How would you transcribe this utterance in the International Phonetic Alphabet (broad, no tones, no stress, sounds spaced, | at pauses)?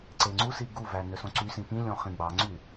ǀ e ŋ͡ǀ u s i ɡ u v æ n ø s õ ǀ y s ĩ p ĩ lʲ õ χ ĩ ɡ͡b ɑ ŋ͡ǀ y